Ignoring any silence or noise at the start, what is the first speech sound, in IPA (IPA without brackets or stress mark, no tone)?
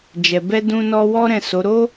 d͡ʒ